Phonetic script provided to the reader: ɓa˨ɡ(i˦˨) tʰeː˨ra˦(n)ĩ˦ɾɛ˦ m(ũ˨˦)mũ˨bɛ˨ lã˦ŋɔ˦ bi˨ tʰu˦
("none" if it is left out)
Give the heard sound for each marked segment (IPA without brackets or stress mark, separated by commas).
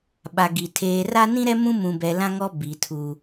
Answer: i˨, n, ũ˦